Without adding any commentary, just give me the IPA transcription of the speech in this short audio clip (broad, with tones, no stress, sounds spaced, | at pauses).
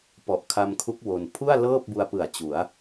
p ɔ˨˩ ʔ kʰ a˧ m kʰ u˦˥ k̚ w o˧ n pʰ u˥˩ a̯ l ɤː˥˩ p̚ b u˧ a̯ p ɯ˨˩ a̯ t͡ɕ u˩˦ a̯